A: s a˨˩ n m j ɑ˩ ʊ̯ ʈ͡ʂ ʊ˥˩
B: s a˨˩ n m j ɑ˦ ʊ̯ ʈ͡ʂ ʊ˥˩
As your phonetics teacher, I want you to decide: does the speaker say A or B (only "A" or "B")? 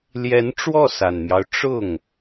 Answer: B